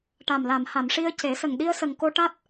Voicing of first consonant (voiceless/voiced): voiceless